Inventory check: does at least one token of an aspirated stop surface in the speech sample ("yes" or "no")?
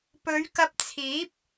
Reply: yes